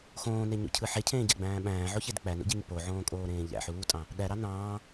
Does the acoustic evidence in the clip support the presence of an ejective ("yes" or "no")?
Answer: yes